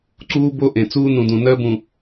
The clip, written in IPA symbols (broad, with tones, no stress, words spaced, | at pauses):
ǀuː˦bo˦ʔẽ˨ t͡suː˦nũ˨ dũ˨ nɜ˦bũ˨